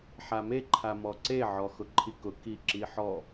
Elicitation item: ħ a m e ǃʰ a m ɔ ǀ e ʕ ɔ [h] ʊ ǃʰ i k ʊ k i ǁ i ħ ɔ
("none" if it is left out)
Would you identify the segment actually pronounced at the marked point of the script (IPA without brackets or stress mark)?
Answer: x